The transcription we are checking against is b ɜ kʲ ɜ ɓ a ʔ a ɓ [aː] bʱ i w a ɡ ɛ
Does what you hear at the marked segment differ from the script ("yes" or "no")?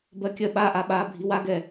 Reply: no